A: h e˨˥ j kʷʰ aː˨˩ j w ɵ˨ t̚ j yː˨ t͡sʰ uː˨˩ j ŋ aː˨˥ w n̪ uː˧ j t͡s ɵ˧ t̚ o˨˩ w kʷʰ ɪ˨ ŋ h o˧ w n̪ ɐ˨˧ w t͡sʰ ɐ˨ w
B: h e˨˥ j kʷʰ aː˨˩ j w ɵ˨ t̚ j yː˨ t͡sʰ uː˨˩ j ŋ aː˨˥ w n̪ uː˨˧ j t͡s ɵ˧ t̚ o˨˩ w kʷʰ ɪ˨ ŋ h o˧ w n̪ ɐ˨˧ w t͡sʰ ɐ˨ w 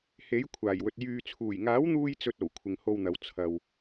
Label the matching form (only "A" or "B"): A